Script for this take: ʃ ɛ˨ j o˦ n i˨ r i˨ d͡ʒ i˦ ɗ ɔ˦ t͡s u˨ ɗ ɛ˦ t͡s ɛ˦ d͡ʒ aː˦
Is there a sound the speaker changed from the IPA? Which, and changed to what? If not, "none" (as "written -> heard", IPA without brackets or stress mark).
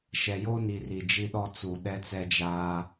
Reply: none